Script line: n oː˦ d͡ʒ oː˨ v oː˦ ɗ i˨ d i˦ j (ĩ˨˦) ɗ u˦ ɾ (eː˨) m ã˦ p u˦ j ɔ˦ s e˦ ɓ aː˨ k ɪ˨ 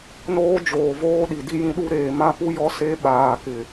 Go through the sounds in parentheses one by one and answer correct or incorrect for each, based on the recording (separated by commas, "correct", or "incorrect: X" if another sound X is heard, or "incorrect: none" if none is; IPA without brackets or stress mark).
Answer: incorrect: ĩ˦, correct